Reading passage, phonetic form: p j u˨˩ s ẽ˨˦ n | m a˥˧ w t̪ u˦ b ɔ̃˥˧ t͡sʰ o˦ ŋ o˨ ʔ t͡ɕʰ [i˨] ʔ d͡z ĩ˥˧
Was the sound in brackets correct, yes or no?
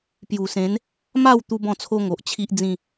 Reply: no